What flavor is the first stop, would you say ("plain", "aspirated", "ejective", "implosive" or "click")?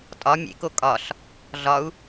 ejective